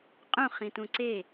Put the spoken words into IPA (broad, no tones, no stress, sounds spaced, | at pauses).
qʼ ũ χ ĩ t ũ ǀ e